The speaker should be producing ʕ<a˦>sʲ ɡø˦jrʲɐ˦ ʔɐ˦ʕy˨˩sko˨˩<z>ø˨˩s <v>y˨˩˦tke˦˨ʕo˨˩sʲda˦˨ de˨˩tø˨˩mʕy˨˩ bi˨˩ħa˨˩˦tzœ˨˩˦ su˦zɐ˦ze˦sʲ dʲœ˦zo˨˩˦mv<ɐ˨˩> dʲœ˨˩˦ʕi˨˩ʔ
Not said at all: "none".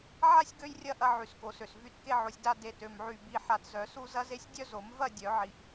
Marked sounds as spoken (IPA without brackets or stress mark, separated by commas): a˦, s, v, ɐ˦˨